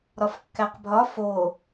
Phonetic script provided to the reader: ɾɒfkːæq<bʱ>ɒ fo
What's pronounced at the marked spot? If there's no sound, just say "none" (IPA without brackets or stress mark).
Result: bʱ